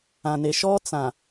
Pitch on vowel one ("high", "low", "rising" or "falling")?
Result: low